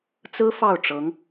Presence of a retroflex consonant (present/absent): present